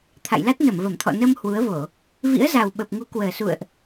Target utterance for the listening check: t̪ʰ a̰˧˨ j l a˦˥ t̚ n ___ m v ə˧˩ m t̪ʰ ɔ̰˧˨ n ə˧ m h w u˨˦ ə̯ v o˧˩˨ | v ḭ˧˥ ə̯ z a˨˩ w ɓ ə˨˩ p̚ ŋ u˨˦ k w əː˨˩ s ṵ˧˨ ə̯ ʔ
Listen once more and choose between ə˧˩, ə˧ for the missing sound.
ə˧˩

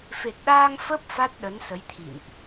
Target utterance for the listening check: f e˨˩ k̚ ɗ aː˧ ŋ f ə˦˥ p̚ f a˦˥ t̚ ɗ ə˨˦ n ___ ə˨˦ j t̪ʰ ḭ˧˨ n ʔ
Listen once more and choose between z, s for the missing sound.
s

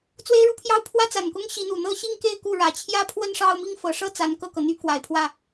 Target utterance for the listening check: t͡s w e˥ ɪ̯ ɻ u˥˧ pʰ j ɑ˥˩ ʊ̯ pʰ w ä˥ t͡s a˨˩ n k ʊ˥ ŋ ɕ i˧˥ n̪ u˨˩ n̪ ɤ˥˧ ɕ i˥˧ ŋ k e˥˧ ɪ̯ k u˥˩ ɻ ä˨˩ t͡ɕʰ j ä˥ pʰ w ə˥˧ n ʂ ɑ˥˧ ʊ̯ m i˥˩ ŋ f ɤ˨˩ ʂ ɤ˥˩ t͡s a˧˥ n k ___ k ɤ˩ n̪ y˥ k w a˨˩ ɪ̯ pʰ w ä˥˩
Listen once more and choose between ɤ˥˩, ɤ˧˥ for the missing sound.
ɤ˥˩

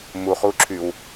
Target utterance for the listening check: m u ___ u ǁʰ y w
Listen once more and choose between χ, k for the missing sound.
χ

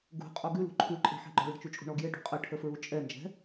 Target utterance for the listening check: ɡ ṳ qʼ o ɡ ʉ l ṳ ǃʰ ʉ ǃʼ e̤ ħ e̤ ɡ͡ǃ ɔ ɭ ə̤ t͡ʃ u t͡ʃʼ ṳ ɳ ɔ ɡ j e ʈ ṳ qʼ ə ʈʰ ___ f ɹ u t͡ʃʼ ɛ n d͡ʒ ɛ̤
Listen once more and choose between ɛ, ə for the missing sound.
ə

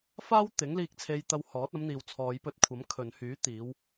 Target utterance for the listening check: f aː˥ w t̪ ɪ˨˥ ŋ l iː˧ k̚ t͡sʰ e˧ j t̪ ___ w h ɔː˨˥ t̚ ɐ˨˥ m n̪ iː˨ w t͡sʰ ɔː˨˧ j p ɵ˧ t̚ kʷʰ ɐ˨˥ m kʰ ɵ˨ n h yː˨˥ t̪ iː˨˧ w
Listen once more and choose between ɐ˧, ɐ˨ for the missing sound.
ɐ˧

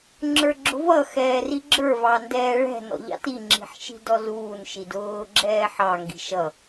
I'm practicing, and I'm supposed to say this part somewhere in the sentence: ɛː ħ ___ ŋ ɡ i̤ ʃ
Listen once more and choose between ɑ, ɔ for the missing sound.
ɑ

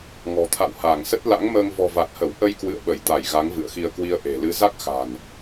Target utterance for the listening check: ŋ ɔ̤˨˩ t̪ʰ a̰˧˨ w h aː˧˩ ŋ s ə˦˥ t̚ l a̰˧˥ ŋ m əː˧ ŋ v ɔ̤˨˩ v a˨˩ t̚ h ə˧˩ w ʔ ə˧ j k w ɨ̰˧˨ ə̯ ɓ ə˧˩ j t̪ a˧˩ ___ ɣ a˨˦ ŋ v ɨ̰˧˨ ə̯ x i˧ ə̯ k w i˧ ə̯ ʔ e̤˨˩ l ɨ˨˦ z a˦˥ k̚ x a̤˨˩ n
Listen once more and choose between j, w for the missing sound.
j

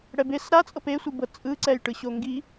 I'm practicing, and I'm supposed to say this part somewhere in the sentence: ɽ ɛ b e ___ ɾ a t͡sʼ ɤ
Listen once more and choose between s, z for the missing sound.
s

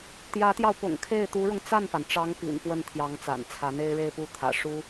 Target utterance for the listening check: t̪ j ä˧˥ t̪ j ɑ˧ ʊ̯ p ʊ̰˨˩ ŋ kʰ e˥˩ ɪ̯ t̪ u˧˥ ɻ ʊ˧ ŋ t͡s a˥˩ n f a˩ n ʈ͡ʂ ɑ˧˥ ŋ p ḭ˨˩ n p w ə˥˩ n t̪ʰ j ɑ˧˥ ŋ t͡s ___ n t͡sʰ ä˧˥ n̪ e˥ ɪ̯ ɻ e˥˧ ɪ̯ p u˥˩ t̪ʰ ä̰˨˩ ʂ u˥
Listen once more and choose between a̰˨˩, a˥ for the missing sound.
a̰˨˩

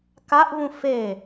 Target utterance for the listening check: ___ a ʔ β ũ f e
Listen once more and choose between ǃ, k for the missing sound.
k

